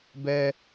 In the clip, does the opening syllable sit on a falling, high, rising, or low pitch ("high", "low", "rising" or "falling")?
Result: high